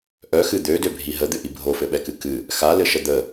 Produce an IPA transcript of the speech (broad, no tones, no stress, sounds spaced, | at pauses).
ʔ œ x ɨ d̪ ø d ø bʱ i ɦ ə d̪ ɨ ʔ i bʱ o f ɘ ɓ ɛ k ɨ k ɨ | x a l ɘ ʃ ə d̪ ə